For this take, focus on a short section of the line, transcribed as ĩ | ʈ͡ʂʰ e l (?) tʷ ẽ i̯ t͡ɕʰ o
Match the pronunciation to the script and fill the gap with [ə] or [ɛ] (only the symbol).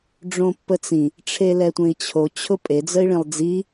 ɛ